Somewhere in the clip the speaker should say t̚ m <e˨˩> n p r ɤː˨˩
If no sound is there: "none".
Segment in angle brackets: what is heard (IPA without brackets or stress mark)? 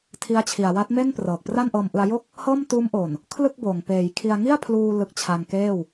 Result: e˥˩